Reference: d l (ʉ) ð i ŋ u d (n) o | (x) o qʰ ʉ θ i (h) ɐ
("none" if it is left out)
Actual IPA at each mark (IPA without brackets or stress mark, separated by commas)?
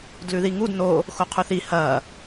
ʉ, n, x, h